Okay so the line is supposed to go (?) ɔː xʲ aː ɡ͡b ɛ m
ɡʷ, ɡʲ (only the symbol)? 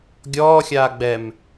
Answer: ɡʲ